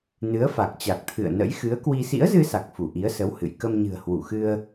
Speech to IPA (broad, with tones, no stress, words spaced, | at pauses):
nɨ˨˦ə̯fa˨˩k̚t͡ɕa˨˩k̚ t̪ʰɨ̰˧˨ə̯nə̰˧˥j xɨ˨˦ə̯kwi˧ sḭ˧˥ə̯zɨ˧sa˨˩k̚ fu˧˩ʔi˨˦ə̯sə˨˦w hɨ̰˧˨j kə˧mɲɨ̤˨˩ə̯hwu˧˩xɨ˧ə̯